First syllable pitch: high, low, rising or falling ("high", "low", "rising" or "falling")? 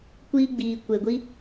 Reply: high